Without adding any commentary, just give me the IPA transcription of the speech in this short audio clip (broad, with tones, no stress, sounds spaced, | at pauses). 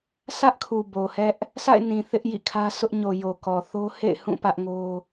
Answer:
s ä˦ ʔ kʰ u˨ b o˨ h ɛ˦ ʔ | sʰ a̰˦˨ ɪ̯ n ĩ˨ θ ɪ˦ ʔ j ḭ˦˨ kʰ ä˦ sʰ ʊ˦ ʔ ɲ o˨ j o˨ k ɔ˨ θ o˦ h ḛ˦˨ ɪ̯ h ũ˦˨ p ä˦ ʔ ŋ o˦